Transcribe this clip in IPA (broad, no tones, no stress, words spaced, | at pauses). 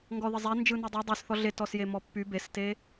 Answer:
ŋɡɔðəzˤɛ nd͡ʒɯnidˤi dˤysθɔ ɮetɔsje mɔpːy beste